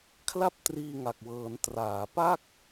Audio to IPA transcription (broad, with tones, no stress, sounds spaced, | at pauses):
kʰ l a˥˩ p̚ t r iː˧ ŋ a˨˩ k̚ w ɤː˩˦ n t r aː˩˦ p a˥˩ k̚